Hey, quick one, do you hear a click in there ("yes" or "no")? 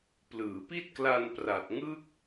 no